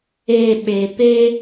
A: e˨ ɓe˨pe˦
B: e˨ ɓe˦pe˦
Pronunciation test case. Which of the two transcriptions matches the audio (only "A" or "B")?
A